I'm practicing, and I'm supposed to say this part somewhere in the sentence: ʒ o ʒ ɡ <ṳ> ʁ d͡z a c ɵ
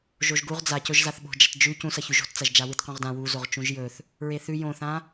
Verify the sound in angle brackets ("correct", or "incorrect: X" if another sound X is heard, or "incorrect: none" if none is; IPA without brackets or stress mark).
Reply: incorrect: u